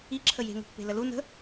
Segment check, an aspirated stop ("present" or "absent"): present